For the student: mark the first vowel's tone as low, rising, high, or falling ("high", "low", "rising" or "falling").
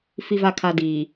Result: low